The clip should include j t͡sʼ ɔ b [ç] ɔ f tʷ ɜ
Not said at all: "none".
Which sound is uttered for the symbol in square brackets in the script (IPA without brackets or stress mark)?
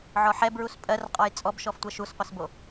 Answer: ʃ